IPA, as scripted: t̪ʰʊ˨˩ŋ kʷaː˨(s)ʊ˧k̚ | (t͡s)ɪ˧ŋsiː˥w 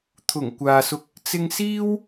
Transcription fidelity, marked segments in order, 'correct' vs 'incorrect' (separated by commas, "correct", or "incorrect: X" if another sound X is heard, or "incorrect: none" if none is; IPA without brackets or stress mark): correct, correct